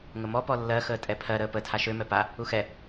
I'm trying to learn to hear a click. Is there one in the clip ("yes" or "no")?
no